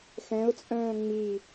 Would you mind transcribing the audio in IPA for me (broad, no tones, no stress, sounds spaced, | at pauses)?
x ɛ̃ ʊ̯ t͡sʼ œ̃ː ŋ͡m i